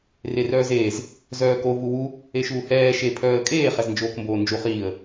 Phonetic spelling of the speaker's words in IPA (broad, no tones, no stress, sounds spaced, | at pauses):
r e r œː z eː z | z œː k o v u w u | e ʃ uː h ɛː ʃ e pʰ œː ə̯ kʼ eː χ ɛ z n d͡ʒ oː k m b oː n d͡ʒ u χ iː ə̯